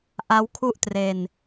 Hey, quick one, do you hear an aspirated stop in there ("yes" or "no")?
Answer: yes